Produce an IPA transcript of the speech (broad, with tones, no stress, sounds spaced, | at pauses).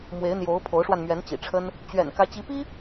m w e˧˥ ɪ̯ n̪ j o˧˥ ʊ̯ pʰ o˧˥ ʊ̯ ʂ w a˧ n m ɥ ɛ˧˥ n t͡ɕ ḭ˨˩ ʈ͡ʂʰ ə˥ n | t͡ɕ ɥ ɛ̰˨˩ n k ä˧˥ t͡ɕ i˧˥ p i˥